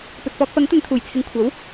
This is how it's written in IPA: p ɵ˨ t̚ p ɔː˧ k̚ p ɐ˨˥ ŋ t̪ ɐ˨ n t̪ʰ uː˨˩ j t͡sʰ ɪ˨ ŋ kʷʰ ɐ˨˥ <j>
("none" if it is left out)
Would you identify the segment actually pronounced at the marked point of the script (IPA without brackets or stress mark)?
w